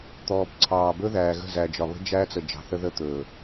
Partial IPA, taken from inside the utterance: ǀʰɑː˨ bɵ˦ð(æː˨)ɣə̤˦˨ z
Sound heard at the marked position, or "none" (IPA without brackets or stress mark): æː˨